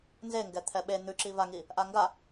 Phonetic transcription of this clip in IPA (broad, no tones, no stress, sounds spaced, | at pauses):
n z e ŋ ɡ ɛ t̪ʰ ɛ ɓ e n̪ ʉ ǁ i v a ŋ i | ʔ a ŋ ɡ a